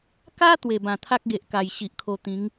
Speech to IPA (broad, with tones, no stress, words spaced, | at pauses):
ka˦ t̪we˨˩bã˨˩t̪ʰa˦k̚ɡe˨ʔ ka˨˩jɕi˨ʔkʰo˧ t̪ĩ˨˦ŋ